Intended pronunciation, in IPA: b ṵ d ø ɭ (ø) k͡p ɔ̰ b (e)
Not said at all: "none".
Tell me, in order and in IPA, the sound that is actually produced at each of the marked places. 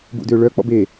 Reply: œ, e

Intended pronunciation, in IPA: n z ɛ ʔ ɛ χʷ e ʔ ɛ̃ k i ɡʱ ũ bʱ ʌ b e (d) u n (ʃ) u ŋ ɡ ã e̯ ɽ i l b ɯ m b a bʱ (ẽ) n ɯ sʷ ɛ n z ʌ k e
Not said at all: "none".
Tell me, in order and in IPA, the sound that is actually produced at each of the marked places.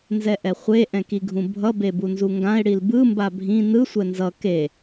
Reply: b, z, ĩ

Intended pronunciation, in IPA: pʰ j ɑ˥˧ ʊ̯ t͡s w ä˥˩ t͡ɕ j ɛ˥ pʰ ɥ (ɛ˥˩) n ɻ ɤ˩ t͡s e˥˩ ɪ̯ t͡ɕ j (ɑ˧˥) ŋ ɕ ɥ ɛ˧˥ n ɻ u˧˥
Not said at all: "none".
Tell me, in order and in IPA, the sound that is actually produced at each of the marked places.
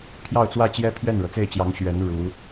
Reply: ɛ˥˩, ɑ˧˥

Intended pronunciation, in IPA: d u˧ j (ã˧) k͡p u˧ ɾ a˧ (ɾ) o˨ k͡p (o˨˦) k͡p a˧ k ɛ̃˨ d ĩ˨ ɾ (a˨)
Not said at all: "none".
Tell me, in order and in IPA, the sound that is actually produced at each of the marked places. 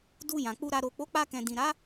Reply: ã˨, ɾ, o˨˦, a˨˦

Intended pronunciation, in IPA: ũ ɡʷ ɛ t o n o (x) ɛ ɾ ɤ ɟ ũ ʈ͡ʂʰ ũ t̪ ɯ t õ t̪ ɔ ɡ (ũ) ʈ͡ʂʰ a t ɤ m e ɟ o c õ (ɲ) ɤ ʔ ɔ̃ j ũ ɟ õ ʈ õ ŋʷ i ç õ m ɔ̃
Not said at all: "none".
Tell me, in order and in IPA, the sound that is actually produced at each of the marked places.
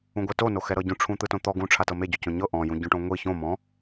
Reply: x, ũ, ɲ

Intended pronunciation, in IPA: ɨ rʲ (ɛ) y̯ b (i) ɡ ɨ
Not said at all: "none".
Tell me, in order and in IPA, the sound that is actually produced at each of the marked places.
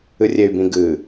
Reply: e, ĩ

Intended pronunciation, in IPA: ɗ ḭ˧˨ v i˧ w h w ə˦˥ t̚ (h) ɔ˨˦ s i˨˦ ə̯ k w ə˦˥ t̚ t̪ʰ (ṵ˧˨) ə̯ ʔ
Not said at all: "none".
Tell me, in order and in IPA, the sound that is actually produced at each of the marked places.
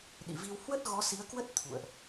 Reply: ɣ, ṵ˧˨

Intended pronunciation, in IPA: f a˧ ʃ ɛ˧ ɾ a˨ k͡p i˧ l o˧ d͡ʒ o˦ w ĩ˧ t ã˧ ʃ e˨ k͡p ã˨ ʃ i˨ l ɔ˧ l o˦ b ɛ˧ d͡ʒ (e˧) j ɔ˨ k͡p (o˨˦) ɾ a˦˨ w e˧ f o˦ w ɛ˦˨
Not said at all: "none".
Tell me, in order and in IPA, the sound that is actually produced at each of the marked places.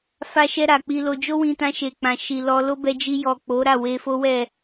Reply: i˧, o˨˦

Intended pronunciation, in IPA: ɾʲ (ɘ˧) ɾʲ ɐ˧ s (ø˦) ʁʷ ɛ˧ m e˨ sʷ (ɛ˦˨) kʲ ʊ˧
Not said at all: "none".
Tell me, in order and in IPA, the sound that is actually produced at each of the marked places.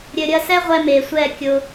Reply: ɘ˧, ɛ˦, ɛ˦˨

